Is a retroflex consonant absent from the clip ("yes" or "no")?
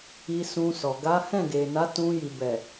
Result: yes